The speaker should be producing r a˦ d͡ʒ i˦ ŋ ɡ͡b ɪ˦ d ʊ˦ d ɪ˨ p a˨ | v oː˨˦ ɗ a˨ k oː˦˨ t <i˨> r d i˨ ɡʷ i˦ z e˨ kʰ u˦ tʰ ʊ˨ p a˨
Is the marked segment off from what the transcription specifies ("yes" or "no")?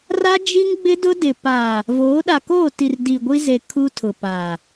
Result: no